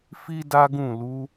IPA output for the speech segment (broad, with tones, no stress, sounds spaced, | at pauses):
f i˦ d a˦ ɡ ũ˦˨ l u˨˦